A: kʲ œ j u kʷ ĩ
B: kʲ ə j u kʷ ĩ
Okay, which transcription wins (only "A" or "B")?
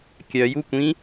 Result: A